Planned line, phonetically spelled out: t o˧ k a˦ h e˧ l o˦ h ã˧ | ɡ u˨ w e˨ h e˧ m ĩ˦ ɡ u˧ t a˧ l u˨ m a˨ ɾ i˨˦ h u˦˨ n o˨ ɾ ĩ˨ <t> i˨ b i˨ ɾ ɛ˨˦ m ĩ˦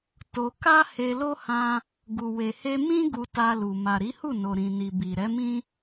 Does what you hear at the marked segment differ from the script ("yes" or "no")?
yes